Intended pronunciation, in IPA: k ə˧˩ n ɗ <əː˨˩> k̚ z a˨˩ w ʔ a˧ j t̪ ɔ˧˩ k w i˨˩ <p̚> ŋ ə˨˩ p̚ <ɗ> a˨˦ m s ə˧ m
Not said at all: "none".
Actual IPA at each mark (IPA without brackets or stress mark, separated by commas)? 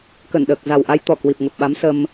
əː˨˩, p̚, ɓ